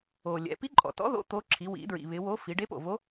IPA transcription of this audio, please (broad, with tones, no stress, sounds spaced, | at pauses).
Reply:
o˩ lʲ ɛ̰˩˧ p i˧˥ ǃʼ ɔ̰˩ t ɔ̰˧˥ ð o̰˧˥ t̪ o˧˥ ǁʰ i˩˧ w ḭ˩˧ d ɹ ḭ˩ β ɪ˩˧ w o˧˥ f i˩˧ ɖ e˧˥ p o̰˩ v o˧˥